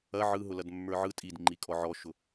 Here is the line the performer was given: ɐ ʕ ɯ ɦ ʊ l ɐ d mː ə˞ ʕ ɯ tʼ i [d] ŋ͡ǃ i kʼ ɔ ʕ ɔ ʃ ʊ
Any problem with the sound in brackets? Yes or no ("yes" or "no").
no